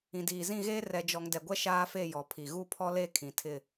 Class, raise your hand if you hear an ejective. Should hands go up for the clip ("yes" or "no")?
no